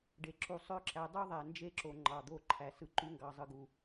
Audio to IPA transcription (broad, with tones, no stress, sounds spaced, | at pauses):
ɖ e˨ ǁ u˨ sˤ ø˦ ǁ æ˨˦ dˤ u˦ ðˤ æ˨ n d͡ʒ e˦ ǁ o˨ ŋ͡ǃ ɑ˨ d̪ o˦˨ ǃʰ æ˨ s ɯ˨ ǃ y˦ ŋ ɡ ɑ˨ zˤ ɯ˨ ɡ u˨